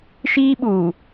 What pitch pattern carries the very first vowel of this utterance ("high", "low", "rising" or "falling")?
high